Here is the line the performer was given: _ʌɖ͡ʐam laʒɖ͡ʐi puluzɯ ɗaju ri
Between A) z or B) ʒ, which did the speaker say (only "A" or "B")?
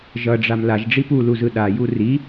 B